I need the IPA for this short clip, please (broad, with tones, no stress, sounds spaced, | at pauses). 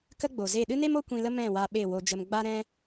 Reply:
k ə˦ ɡ͡b o˨ z e˦˨ ɗ ɨ˦ n e˦ m o˦ kʷ ĩ˧ l ə˦ m ɛ̃˦˨ w a˧ ɓ e˦˨ w o˧ d͡ʒ ə˧ m ɡ͡b a˦ ɾ ɛ̃˦